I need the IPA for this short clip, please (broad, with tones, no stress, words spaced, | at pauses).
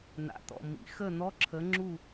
n̪a̰˨t̪ɔ̰˨mḭ˩˥ xə˥˩n̪ɔ˧˥˧ǁʰə˩˥ ŋ͡ǁu˥˩